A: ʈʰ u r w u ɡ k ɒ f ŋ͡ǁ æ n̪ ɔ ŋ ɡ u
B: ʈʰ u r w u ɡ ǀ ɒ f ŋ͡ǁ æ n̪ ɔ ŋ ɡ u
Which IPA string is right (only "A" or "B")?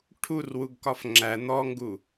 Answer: A